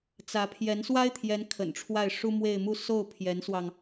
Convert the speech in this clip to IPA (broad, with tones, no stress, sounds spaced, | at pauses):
t͡s ä˧˥ pʰ j ɛ˧˥ n s w a˥ ɪ̯ t̪ʰ j ɛ˧˥ n kʰ ə̰˨˩ n ʈ͡ʂʰ w a˥˩ ɪ̯ ʂ u˥ m w e˥˧ ɪ̯ m u˥˧ s o˥˩ ʊ̯ pʰ j ɛ˧˥ n s w ɑ˧ ŋ